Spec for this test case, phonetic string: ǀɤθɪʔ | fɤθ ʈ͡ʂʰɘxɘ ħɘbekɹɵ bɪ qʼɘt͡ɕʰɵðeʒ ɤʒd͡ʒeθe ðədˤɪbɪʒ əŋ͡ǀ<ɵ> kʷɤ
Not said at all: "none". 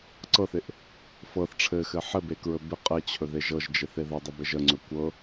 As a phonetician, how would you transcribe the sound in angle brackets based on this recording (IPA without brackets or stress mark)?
ɵ